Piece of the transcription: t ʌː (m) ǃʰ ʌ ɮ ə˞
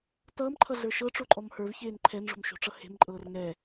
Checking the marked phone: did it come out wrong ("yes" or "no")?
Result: no